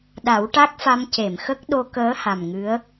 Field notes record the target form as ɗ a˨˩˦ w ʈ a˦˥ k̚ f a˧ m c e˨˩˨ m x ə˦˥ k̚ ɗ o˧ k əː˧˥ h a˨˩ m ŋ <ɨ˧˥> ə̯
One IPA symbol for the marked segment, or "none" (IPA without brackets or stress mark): ɨ˧˥